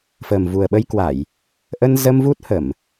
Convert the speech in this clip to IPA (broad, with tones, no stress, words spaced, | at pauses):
fəː˨˩mvu˨˩ə̯ɓə˧jkwa˧˩˨j | ʔə˧nzə˧m vu˦˥t̚hə˧˩˨m